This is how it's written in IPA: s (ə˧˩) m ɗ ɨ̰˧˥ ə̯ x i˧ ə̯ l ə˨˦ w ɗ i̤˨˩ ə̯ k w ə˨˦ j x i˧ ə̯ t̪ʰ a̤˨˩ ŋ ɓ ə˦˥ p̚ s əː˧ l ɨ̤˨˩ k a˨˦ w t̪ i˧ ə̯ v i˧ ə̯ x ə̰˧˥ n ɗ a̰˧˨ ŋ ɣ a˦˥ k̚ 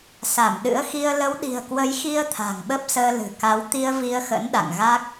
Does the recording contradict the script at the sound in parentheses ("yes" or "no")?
yes